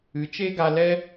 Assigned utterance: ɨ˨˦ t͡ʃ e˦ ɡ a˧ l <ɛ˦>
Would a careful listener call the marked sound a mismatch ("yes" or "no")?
no